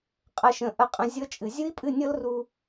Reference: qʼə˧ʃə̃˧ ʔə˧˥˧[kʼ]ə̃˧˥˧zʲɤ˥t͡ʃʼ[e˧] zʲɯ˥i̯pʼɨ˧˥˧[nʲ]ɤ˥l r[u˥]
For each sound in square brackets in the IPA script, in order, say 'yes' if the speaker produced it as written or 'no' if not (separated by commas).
no, no, yes, yes